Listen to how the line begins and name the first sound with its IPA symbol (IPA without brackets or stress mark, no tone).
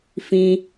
f